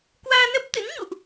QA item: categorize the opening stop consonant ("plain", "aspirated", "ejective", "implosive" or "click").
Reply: plain